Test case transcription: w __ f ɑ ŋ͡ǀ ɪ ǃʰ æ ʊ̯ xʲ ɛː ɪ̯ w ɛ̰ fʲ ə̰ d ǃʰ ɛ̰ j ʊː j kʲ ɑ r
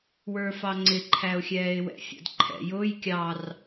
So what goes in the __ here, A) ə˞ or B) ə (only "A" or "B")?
A